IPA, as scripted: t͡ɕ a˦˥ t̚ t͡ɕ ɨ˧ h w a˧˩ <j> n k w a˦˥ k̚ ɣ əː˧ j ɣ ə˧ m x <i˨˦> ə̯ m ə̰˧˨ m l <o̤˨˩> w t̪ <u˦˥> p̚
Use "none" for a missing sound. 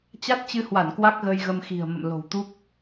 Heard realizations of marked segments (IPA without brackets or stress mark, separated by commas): none, i̤˨˩, o̤˨˩, u˦˥